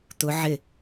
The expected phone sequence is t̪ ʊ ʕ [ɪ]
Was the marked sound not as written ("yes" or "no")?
no